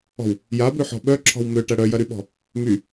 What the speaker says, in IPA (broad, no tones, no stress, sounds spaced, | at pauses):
ɔ̤ w | j a b ø ħ ɔ̤ ɓ œ ǁʰ ɔ̤ w m ø ʈ ɐ ɽ œ j ɐ ɾ y ɓ ɔ̤ | m y